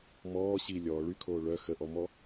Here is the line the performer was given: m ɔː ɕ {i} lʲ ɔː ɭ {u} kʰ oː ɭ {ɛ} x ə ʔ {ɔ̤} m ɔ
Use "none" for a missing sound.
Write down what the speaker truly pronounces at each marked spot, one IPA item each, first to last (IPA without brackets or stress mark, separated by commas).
i, y, œ, ɔ